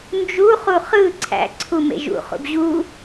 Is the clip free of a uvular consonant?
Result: no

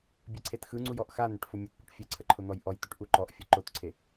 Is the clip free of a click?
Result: no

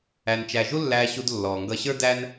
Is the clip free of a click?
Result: yes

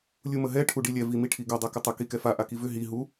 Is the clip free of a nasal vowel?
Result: yes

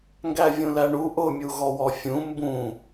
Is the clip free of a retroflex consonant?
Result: no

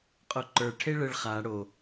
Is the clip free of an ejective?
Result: no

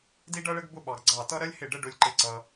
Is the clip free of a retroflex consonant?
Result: no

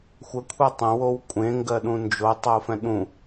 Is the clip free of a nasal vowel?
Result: no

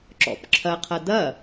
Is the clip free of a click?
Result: no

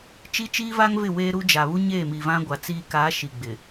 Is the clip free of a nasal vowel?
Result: no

